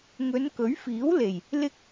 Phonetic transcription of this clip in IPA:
ŋ ɵ˨˧ n k ɵ˨˥ ɥ f iː˨˥ w l e˨˩ j | l ɪ˥ k̚

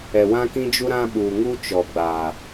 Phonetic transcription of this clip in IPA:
ɛ˨ w ã˦ k ĩ˦ d͡ʒ u˦ ɾ ã˦ ɓ uː˨ ŋ u˦ t͡ʃ ɔ˨ ɡ͡b a˨

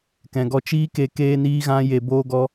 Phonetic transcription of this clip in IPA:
k ɛ̃˨ ɡ ɔ˧ t͡ʃ iː˦ k e˧ k eː˦ n iː˦ ɣ ã˦ j e˧ b oː˦ ɡ ɔ˦

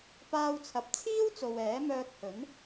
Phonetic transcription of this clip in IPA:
p aː˧ w t͡sʰ ɐ˨ p̚ t͡sʰ iː˥ w t͡s o˨ w ɛː˨˥ m œː˧ k̚ h ɵ˨˥ n

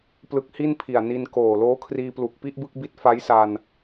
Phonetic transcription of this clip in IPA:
p l ɯ˦˥ k̚ h i˥˩ n pʰ i˨˩ a̯ n i˧ n k oː˨˩ l oː˦˥ kʰ r iː˧ p l u˨˩ k̚ p i˥˩ ʔ b ɯ˥˩ k̚ b i˦˥ t̚ f a˦˥ j s a˧ n

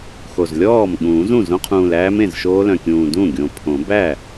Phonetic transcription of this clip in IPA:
x o˨˩ z lʲ ɔː˥˩ m ɠ ũː˨˩˦ z ũ˥˩ z õ˦˥ qʰ ũː˨˩ l æː˦˥ m ẽ˥˩ z ʃ oː˦˥ l œ̃˨˩ kʲ ũː˨˩ d ũ˥˩ ɡʲ õ˨˩ pʰ õ˨˩˦ b æ˥˩

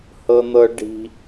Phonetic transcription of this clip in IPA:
h ɤ˦ n̪ ɤ˦ ɖ i̤˦

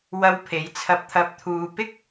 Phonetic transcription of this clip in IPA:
w ɐ˧ w pʰ e˨˥ j t͡sʰ ɐ˧ p̚ t̪ʰ ɐ˧ p̚ t̪ʰ uː˨ p ɪ˥ k̚

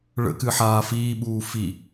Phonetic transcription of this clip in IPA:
ɭ ə̰ k ɨ ħ aː f iː ɓ uː f i

